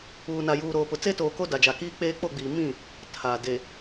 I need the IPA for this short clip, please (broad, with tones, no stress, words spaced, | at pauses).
uː˨na˨juː˨ ɾoː˨pʊ˨ t͡se˦toː˨ko˦ da˨d͡ʒa˨kiː˦k͡peː˦ k͡po˦˨ɡ͡biː˨ mĩ˦˨ | tʰa˨ de˨